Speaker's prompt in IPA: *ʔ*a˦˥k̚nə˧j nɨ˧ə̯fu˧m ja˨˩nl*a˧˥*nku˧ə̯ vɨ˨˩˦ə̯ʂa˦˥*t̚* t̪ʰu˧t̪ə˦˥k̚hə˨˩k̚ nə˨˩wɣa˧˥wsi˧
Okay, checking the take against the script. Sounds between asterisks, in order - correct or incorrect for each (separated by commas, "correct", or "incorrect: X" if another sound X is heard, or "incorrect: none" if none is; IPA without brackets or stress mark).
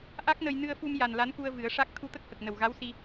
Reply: correct, correct, incorrect: k̚